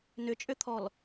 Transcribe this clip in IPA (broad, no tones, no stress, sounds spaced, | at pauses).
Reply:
n ʏ t͡ʃʼ ʏ t̪ʰ ɔ l